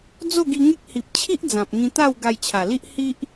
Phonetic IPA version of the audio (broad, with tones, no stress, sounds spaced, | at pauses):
d͡z o˥˧ ɡ i˧ ŋ e˦ k̚ h i˨ p̚ t͡ɕʰ i˦ ʔ d͡z ã˨ p̚ ŋ ĩ˧ t̪ a˥˧ w ɡ a˧ j t͡ɕʰ a˨˩ l i˦ ʔ h i˦ ʔ